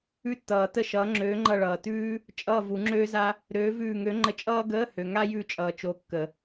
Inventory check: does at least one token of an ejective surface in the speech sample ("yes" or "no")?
yes